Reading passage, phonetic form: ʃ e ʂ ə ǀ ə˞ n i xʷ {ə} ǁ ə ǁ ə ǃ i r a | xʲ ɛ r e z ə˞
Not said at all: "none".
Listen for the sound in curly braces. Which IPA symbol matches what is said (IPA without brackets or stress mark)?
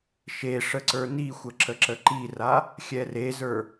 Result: ə